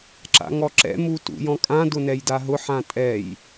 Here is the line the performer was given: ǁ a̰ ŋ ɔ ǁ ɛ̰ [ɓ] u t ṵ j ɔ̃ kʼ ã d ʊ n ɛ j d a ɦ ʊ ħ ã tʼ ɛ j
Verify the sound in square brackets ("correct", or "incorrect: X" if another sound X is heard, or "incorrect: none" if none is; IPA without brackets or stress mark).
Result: incorrect: m